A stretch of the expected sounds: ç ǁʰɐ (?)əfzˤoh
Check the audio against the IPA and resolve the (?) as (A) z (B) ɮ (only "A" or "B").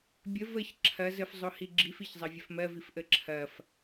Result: A